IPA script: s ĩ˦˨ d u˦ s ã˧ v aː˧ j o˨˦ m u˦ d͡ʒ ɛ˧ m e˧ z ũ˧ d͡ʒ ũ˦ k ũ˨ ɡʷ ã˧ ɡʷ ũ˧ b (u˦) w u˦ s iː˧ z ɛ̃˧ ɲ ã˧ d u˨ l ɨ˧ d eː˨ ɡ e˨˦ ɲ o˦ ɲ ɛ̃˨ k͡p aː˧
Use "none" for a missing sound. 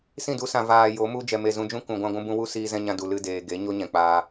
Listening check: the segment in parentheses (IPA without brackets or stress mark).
ũ˦